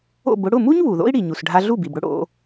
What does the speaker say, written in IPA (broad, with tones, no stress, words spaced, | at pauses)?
o̰˥˩b ʊ˧ɽʊ˥˩mu˥ɲ βu˩ðo̰˥i̯ɽi˩ɲu˩s ɖʱa˧ɮu˥˩bi˩bɽʊ˥ ɽo̰˧